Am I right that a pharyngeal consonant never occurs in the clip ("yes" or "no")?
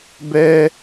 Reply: yes